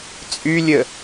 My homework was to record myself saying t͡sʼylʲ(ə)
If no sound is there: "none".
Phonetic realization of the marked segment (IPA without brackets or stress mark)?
ə